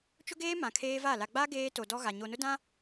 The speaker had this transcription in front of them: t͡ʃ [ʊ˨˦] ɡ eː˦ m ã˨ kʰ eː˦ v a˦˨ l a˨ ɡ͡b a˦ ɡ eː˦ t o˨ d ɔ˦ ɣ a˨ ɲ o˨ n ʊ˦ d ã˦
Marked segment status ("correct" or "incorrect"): incorrect